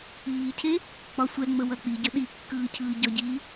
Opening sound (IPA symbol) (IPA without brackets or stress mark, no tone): iː